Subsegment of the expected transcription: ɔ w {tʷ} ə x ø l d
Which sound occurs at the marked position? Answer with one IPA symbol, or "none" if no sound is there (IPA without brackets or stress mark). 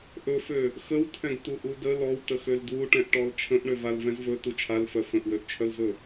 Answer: t